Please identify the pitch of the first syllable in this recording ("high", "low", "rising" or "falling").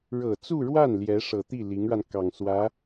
low